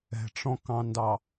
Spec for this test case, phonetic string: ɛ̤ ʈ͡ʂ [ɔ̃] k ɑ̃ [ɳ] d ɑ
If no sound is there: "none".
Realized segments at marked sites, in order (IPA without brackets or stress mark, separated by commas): ɔ̃, n